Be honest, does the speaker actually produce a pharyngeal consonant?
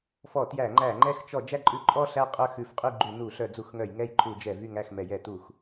no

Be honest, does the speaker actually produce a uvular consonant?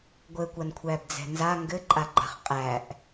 yes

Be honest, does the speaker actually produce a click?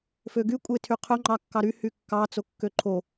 yes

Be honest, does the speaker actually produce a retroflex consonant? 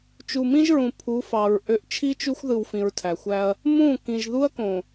no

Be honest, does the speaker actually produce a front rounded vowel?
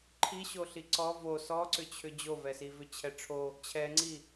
yes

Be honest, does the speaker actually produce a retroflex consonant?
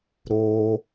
no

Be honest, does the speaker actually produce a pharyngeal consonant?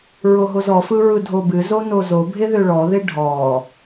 no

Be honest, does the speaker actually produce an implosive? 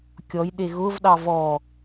yes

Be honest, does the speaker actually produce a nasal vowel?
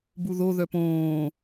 yes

